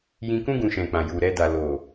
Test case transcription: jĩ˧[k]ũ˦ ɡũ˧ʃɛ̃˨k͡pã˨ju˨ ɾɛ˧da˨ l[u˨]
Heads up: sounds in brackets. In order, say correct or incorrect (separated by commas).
correct, incorrect